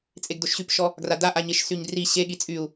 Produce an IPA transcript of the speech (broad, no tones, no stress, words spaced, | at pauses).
t͡sʼeɡdoʃɕypʃɔ | ɡradaʔaɲeʃ syɲdri ɕeɠi t͡sʼyu̯